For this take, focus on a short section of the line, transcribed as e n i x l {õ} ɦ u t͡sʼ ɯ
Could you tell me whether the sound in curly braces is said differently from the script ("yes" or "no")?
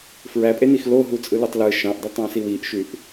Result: yes